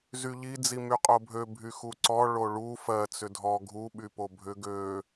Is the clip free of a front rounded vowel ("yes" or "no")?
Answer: no